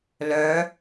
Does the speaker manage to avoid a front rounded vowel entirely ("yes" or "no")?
no